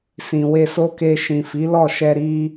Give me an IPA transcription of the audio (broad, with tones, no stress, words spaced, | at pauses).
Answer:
sĩ˨we˧so˦ke˧ ʃĩ˨fi˨˦lɔ˦˨ʃɛ˧ ɾi˧